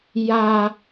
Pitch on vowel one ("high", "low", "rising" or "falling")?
high